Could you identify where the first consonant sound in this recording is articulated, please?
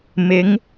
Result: labial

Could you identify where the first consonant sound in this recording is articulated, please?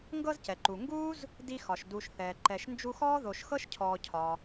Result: velar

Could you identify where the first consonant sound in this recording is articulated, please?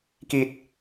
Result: velar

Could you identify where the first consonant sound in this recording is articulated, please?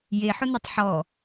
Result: palatal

